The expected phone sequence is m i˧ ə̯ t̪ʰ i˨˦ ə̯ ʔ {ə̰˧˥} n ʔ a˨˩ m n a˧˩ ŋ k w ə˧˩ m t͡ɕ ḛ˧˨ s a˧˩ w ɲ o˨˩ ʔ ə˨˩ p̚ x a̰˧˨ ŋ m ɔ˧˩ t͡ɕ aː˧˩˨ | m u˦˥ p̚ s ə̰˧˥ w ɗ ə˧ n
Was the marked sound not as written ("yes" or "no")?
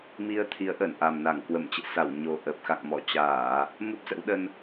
yes